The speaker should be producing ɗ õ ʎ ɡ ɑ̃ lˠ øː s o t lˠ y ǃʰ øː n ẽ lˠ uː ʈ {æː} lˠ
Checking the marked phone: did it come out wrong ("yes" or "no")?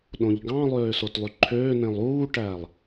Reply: no